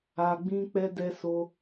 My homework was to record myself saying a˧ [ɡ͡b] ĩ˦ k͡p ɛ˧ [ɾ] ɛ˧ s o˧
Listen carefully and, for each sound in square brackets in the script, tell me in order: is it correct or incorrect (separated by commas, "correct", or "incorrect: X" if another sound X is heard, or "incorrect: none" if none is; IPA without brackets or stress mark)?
correct, incorrect: d